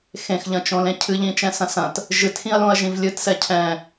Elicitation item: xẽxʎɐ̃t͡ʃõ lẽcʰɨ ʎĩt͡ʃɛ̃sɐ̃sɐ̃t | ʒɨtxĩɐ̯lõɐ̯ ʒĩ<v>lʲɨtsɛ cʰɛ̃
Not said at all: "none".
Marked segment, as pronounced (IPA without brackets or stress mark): v